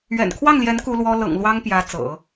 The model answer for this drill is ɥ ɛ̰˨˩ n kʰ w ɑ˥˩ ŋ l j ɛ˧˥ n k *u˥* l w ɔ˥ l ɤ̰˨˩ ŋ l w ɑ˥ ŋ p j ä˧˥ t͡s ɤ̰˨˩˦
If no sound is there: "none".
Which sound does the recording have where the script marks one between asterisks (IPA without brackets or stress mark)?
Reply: u˥